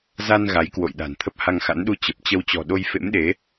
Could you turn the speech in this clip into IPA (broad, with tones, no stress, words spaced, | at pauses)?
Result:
za˧n ɣa˨˦jkwo̰˧˨jɗa̤˨˩n t̪ʰə˦˥p̚ha˧ŋxa̰˧˥n ɗu˧t͡ɕə˨˩p̚t͡ɕə˧w t͡ɕɔ̤˨˩ɗo˧jfḛ˧˥mɗe˨˦